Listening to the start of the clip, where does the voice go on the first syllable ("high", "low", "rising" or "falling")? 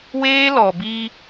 high